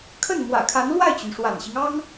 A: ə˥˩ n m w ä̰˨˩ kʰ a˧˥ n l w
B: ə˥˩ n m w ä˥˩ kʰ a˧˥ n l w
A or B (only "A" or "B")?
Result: A